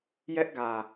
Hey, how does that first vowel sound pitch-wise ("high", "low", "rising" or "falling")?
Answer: high